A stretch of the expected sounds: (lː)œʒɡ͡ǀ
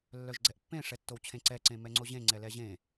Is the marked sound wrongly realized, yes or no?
no